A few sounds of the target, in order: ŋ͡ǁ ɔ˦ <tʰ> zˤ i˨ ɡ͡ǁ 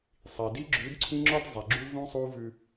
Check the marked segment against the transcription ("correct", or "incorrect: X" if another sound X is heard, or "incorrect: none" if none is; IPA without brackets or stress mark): incorrect: d